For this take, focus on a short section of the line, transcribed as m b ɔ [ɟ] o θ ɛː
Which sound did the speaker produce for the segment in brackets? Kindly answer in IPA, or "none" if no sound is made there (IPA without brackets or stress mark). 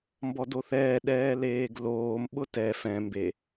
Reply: d